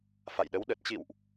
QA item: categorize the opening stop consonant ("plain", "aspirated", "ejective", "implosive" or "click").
implosive